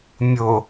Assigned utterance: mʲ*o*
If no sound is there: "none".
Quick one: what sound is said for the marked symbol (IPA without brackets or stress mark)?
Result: o